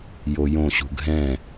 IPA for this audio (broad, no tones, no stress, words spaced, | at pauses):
jojõɕṳ ɡʱɛ̃